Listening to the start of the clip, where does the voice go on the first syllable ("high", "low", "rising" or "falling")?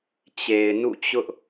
low